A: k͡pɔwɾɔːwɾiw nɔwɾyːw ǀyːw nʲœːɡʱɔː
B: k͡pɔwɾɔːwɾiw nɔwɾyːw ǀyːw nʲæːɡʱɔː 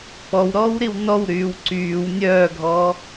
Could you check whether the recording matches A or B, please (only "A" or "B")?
A